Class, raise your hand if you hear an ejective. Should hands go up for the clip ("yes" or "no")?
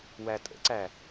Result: yes